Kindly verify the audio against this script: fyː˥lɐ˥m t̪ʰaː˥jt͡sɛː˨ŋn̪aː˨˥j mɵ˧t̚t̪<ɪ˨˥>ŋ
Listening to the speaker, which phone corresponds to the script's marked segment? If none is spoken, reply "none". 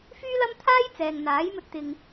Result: ɪ˨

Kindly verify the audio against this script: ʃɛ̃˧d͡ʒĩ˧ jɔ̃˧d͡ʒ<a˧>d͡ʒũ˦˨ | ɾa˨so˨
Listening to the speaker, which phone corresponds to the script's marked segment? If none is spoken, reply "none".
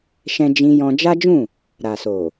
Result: a˦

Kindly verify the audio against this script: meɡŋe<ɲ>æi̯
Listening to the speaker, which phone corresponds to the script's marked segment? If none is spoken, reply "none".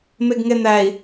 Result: n̪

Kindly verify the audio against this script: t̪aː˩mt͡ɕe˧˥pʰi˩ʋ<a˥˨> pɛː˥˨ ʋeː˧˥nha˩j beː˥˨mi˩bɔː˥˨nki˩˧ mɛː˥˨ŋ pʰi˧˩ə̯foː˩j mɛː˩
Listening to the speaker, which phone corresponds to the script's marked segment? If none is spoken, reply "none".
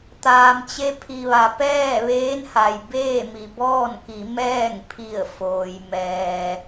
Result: a˩˧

